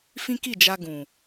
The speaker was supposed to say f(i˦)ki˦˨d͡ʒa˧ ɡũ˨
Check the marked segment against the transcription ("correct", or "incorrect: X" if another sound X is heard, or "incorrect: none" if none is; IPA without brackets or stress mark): incorrect: ĩ˦